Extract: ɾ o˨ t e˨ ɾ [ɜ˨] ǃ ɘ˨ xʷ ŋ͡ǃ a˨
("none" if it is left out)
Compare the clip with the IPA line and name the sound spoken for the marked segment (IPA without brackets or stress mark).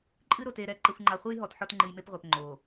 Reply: ɛ˨